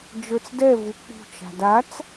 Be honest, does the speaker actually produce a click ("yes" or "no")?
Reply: no